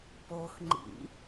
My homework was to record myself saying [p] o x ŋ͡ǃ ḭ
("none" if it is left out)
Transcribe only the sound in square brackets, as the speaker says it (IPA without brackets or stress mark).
p